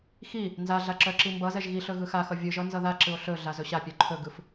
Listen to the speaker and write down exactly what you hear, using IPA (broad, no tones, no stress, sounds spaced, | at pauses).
x i | n z a ɮ a ǁ œ ǁ i m b ʌ z ɛ ʒ ɣ i ɬ ɵ ɣ ɯ x a x ʌ vʲ ɯ ʒ ʌ n z ʌ ð a ǁ ɯ o̯ ɬ ɵ ɮ a z ɵ ɕ a pʲ œ ǃʰ ɵ ɡ ɯ f